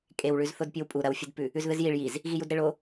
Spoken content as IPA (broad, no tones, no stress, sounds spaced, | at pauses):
kʼ e w ɭ ʉ z θ o d pʲ ʉ w pʼ u ɾ ɐ w fʲ ɨ d p ʉ | ʉ z ð ɨ z j i ɭ j i z | ɣ i j u d ɾ e ɭ o